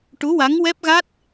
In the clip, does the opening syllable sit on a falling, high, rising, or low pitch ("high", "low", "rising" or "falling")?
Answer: rising